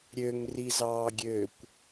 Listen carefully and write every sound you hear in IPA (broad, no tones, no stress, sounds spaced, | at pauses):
ɾʲ ø ŋ r i z ɑː ɡʲ ø kʷ